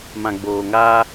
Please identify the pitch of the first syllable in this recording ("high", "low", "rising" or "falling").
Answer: low